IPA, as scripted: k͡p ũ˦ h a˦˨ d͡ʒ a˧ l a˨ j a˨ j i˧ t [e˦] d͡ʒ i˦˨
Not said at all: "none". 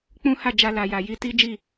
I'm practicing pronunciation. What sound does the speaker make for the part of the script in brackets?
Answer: i˦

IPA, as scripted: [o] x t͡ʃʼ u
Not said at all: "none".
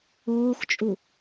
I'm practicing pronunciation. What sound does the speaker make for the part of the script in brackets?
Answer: oː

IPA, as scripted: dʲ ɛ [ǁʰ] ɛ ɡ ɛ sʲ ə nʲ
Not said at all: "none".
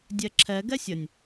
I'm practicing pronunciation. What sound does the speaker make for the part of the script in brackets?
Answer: ǁʰ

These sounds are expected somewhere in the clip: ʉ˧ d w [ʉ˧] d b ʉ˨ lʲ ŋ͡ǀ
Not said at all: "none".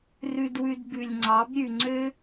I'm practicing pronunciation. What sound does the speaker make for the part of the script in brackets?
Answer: ʉ˧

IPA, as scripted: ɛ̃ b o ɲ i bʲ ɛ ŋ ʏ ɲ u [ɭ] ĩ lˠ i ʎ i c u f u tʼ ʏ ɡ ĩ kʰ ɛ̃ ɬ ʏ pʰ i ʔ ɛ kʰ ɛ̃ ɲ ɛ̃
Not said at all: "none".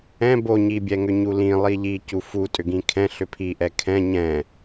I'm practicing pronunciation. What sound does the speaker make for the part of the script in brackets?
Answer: l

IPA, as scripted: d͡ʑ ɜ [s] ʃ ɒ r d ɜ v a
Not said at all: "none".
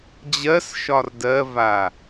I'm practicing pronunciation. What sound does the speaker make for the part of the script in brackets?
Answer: s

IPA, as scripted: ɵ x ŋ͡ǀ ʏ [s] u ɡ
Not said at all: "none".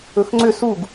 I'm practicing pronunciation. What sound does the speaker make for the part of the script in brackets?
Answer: s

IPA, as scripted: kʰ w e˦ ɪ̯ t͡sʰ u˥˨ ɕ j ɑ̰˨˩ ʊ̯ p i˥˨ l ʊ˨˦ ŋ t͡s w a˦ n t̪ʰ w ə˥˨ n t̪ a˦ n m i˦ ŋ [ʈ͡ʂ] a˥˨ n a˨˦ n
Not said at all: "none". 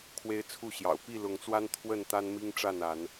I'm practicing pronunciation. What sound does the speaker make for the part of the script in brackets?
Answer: ʈ͡ʂ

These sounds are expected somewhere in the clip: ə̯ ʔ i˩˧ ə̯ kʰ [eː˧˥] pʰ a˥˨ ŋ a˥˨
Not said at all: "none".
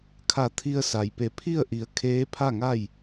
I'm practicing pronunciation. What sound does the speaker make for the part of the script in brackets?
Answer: eː˧˥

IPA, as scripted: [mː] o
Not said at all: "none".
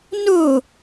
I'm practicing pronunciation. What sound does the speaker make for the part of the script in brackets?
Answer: n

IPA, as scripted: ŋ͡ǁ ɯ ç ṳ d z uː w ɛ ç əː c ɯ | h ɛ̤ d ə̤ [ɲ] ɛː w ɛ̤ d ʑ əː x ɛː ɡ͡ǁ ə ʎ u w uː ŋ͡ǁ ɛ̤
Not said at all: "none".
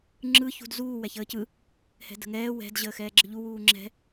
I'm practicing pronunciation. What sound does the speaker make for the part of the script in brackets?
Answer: ŋ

